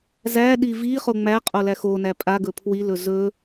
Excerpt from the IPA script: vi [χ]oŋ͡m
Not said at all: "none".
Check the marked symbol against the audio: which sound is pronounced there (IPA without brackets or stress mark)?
χ